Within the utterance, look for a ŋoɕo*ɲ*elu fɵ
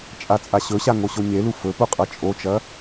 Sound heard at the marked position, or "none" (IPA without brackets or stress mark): ɲ